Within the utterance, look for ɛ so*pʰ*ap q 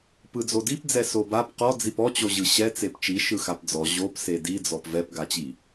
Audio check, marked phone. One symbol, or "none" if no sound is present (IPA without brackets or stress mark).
b